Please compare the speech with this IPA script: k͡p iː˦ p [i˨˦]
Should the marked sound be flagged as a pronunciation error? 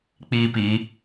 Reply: no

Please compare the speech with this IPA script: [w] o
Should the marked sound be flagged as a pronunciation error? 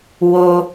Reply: no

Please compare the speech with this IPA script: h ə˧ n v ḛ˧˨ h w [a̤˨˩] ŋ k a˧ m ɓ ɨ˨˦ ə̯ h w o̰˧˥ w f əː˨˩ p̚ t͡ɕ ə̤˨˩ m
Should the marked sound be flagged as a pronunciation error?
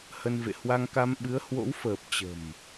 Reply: yes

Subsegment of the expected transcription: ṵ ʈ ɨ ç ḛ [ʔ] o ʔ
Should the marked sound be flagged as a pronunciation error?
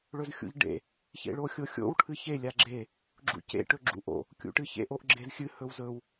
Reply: no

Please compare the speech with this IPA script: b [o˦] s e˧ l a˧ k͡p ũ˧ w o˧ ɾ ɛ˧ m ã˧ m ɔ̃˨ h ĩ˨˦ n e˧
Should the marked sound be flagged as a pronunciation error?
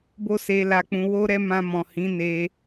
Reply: no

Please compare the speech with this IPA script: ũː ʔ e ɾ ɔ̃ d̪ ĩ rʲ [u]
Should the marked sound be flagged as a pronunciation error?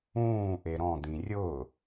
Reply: yes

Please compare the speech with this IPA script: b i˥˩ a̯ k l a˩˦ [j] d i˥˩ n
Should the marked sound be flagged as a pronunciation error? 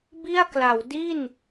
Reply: yes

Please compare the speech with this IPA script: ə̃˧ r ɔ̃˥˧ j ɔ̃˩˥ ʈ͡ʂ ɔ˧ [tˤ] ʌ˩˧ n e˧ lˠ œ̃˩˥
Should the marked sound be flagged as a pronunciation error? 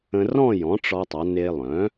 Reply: no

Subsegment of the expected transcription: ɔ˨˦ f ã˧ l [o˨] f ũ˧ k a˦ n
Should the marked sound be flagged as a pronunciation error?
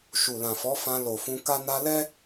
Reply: no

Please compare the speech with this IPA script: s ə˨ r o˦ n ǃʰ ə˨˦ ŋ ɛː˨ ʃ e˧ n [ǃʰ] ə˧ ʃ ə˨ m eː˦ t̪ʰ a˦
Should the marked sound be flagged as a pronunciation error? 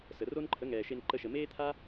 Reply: yes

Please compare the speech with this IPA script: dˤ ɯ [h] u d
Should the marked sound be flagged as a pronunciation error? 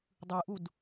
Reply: yes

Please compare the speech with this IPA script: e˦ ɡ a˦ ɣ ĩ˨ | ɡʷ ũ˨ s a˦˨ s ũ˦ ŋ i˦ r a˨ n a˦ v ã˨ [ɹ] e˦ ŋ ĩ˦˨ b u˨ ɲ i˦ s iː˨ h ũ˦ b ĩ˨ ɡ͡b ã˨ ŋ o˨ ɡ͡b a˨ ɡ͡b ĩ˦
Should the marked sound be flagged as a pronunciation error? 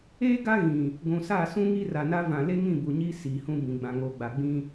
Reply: yes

